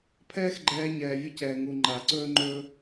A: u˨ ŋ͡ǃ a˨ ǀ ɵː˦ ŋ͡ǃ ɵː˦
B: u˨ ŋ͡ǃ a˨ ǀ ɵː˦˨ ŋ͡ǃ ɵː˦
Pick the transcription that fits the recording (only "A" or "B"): A